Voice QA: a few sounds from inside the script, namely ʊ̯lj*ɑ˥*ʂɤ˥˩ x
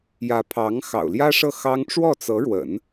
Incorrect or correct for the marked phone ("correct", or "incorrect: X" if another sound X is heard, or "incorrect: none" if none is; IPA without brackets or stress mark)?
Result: incorrect: ä˥